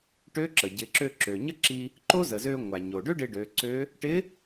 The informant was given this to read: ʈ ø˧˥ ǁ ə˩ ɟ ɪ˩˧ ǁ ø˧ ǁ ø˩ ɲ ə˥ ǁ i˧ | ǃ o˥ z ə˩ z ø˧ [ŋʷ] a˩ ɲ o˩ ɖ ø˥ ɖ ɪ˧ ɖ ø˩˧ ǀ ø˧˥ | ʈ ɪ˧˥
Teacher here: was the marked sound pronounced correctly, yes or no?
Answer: yes